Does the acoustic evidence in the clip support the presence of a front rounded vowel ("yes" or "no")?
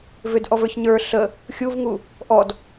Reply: yes